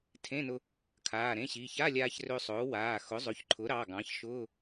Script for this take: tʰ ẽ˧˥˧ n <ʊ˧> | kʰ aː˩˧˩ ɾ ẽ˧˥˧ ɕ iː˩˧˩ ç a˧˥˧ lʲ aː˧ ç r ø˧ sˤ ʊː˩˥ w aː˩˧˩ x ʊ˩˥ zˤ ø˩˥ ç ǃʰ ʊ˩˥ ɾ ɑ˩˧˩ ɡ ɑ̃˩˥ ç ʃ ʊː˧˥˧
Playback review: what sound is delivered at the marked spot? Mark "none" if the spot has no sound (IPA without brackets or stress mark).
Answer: ʊ˧